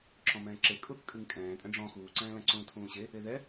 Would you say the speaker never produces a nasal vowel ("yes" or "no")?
no